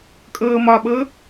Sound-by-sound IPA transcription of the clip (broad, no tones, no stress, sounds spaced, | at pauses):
kʼ ɤː m ɒ ɓ ɤ